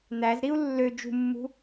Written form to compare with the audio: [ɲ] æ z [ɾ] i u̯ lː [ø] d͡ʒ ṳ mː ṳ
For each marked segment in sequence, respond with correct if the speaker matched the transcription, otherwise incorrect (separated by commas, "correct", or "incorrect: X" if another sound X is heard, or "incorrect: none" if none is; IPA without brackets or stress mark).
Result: incorrect: n̪, correct, correct